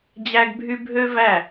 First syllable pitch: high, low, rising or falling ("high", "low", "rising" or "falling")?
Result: high